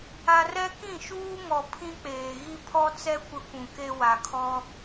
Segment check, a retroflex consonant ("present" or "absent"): absent